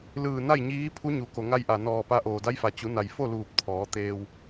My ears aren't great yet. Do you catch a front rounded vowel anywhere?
no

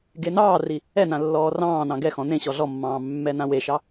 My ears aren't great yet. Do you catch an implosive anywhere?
no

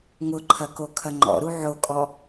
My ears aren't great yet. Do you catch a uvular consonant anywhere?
no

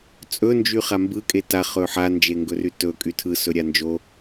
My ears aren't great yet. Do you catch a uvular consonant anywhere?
yes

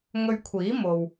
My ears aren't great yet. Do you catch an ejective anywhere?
no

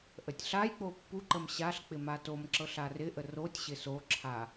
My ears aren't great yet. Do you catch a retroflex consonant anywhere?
no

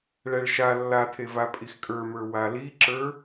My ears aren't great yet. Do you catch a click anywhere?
yes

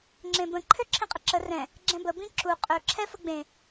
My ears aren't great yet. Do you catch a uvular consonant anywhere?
yes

